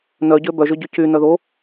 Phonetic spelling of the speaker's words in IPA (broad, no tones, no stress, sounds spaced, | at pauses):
n œ ɟ ø b œ ʒ ø ɟ y c y n œ ð o